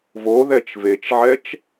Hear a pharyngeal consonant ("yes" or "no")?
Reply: yes